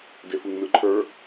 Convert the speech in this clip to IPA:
defɯŋnɯǃʰə˞

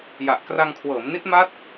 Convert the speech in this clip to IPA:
ja˨˩ʔ kra˧ŋkʰwɤː˩˦mni˦˥t̚ ma˦˥t̚

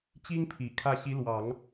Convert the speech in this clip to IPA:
t͡ɕi˥ŋpʰi˨˩ kʰä˥˩ ɕi˧˥lwɑ˨˩˦ŋ

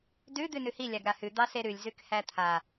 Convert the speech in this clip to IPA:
dʉ d̪ʉnʉhi lʲaɡɾahʉ d̪ɑseɾʉlʲ zʉkhæt̪ʰa

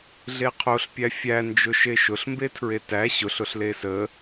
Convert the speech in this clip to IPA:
ɮeqʰoɬpʲæ fʲæ nd͡ʒʊʃeʃʊɬ mbetʰɹetæ ɕʊɬʊɬ lesə

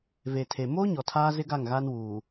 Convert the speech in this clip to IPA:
ve˨tʰe˨ mo˦ ɲɔ˨tʰaː˦zɪ˦ɡa˦˨ŋ ɣa˦nwuː˨

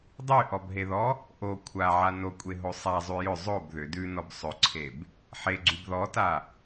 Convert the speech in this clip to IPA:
dˤyʔɔbɦeðɔ | ʔo kʷʰaʕa nokʷʼeɦo sˤazˤy jʏ zˤob ðʏ dʉnɔb sˤʏǀʰeb | ħeɡ͡ǀyb ðɔta

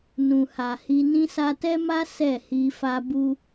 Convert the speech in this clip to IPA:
nũ˨ha˨hi˧ nĩ˧sa˧tɛ˦ma˦ sɛ˦˨hi˧fa˦ bu˦

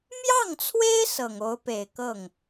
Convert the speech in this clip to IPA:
mjɑ˥˩ŋt͡sʰwe˥ɪ̯ sɤ˨˩ŋo˧˥ʊ̯pe˨˩ɪ̯ kɤ˥˩ŋ

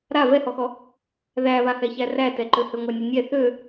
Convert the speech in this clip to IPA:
ɾa vɛhɔxɔ | ðæβahɛçæ rætɛǃøhø ŋʷænʲønʲɛ θø

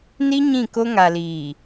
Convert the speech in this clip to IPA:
ni˦ ɲĩ˦˨ ko˦ ŋa˨liː˨

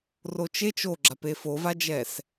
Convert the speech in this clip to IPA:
rot͡ʃet͡ʃ oɡ͡ǁap efovad͡ʒɛs

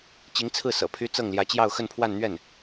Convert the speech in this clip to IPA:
t͡ɕi˧˥ŋt͡sʰɹ̩˥˩ sɤ̰˨˩pʰy˥ t͡sɤ˥˩ŋljä˧˥ t͡ɕjɑ˥˧ʊ̯xə˥˧npʰwa˥˧nn̪ɥɛ˥˩n

